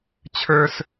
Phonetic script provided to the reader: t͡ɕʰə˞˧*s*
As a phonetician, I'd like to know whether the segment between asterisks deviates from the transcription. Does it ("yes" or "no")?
no